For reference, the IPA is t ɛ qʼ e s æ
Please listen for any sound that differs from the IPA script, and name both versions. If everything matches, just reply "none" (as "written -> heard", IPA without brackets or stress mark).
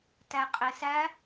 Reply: ɛ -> æ